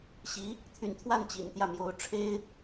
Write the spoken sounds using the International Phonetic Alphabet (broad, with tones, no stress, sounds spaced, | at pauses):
ɕ i˧˥ | t̪ʰ y̰˨˩ n t̪ʰ w a˥˩ n t͡ɕ ḭ˨˩ n t̪ j ä˥˩ m j o˧˥ ʊ̯ ʈ͡ʂʰ e˥ ɪ̯